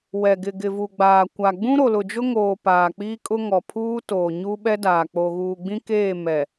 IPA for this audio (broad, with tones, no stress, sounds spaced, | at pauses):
w ɛ˨ ɡ ɪ˨ ɡ ɪ˨ v u˨ ɡ͡b aː˨ kʷ a˨ ɡ͡b ũ˦ ɾ o˨ l ʊ˨ d͡ʒ ʊ˦ ŋ oː˨ p aː˨ k͡p iː˦ kʼ ʊ˦ ŋ ɔ˨ pʰ uː˦ t oː˨ ɲ u˦ ɓ ɛ˦ d aː˨ k͡p o˨ ɣ uː˨ ɡ͡b ĩ˦ k eː˦˨ m ɛ˨